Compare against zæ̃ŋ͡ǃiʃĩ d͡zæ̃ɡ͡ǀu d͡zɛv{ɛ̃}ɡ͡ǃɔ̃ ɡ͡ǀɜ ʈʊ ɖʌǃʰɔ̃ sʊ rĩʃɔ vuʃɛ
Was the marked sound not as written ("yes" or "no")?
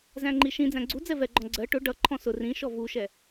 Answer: yes